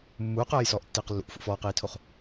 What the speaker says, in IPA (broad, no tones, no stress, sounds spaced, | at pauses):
mː uː q ɜː j s ɔː ʔ tː iː q lː ṵ ʔ f ṵ f ɔː q iː tʰ o χ